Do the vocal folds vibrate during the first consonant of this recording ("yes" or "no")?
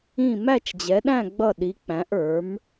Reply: yes